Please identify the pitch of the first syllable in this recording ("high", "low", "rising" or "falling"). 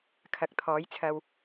rising